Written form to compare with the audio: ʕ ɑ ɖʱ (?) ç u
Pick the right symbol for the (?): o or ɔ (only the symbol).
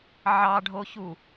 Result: o